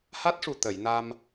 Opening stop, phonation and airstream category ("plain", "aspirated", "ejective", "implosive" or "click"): plain